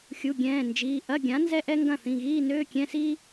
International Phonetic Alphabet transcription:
xʲ u˩˧˩ ɡʲ ɛ̃ː˩˧˩ n d͡ʒ iː˩˧˩ ʔ ɐ˧˥˧ ɡʲ ã˩˥ n z ɛ˥ ʔ ɛ˥ ŋ ɡ ɐ̃˥˩ θ ĩ˩˧˩ ɣ iː˧˥˧ n øː˧˥˧ kʲ ɛ̃˧˥˧ s iː˥

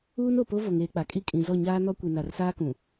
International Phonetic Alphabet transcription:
uː˦ n o˨ p o˦ v o˨ ŋ eː˨ k͡p a˨ kʼ i˦ kʼ ĩ˨ z ɔ˦˨ ɲ aː˦ n ɔ˦ kʷ i˨ n a˨ r s aː˦ k ũ˨

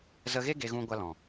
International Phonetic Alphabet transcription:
z ə˧ ɣ e˦ ɡ e˧ ɣ ũ˧ ɡʷ a˧ l ɔ̃˨

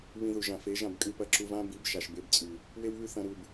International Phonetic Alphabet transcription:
β ĩ˧ ð u˨ ʒ ã˨ f e˨˦ ʒ ã˦˨ b kʼ ɨ˧ p ɐ˧ ǁ u˧ v ã˦ b i˨˦ b ʃ a˨ ʃ b e˧ b t͡sʼ ʉ˨ | w e˦ w β ʉ˦ θ ɐ̃˧ ɾ u˨ b

